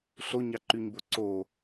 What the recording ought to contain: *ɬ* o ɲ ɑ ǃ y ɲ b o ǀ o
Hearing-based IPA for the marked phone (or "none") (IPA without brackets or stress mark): ɬ